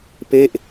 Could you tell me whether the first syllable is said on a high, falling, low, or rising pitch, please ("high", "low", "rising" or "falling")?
falling